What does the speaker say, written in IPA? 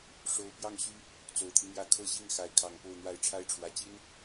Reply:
ʂ o˧˥ ʊ̯ p j ɑ˥˩ ŋ ɕ y˥ | t͡s o˨˩ ʊ̯ t̪ʰ i˦ n̪ j ä˥˧ kʰ ɤ˥˧ ɕ i˥˩ ŋ x a˧˥ ɪ̯ kʰ ɑ˨˩ ŋ p o˥˧ ʊ̯ n̪ w a˥˩ ɪ̯ ʈ͡ʂʰ a˥ ɪ̯ ʈ͡ʂʰ w ä˨˩ t͡ɕ i˥ n

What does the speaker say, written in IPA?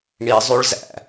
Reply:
ɳ i zˤ y ɭ z æ̰

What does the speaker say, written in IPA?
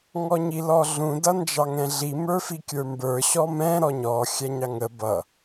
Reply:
ŋ ɔ ɲ i l ɔ ɮ ũ d ʌ n d͡ʒ ɑ ŋ ɛ̃ ɮ i m ə˞ f i kʲ ə˞ m b ə˞ ɕ ɔ m ɛ̃ ɾ ɔ ɲ ɔ xʲ æ ɲ ɑ ŋ ə b ʌ

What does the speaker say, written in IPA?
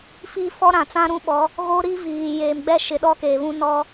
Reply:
f iː˦ f ɔ˦ ɾ ã˨ t͡s ã˦ ɾ ũ˦ ɓ ɔ˨˦ | ɣ o˦ ɾ i˦ v iː˨ j eː˨ m ɡ͡b ɛ˦ ʃ ɪ˨ ɗ ɔ˦ k eː˨ β ũ˦ n ɔ˦

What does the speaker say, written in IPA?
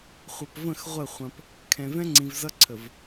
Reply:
χʷ ʌ˨ p v ə̃˦˨ x ʁʷ ə˦˨ χʷ ɐ̃˦ p | kʰ ɛ̃˨ v ɛ̃˦ ŋ͡ǀ ĩ˨ v z ʌ˦ ǀʰ ə˨ v

